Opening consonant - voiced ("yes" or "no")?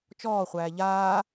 no